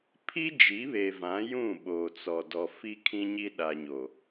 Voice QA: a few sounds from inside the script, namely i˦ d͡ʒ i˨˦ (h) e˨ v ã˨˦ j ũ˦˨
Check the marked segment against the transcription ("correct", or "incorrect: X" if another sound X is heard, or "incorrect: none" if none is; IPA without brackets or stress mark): incorrect: β